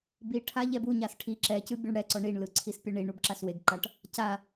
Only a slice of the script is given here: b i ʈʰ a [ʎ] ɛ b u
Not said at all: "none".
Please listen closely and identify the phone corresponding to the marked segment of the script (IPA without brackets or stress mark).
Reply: ʎ